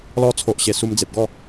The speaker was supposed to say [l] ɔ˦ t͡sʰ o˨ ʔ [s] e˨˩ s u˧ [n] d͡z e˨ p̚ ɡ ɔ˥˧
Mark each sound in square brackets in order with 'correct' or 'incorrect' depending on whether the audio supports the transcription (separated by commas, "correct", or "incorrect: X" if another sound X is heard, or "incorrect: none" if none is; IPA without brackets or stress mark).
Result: correct, incorrect: ɕ, incorrect: m